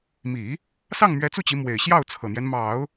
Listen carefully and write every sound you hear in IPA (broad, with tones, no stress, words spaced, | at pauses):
mi˨˩˦ | sɑ˥˩ŋmɥɛ˧˥t͡su˥˩t͡ɕi˧˥ mwe˨˩ɪ̯ɕjɑ˥˩ʊ̯ t͡sʰɤ˨˩n̪jɛ˦n mɑ˨˩˦ʊ̯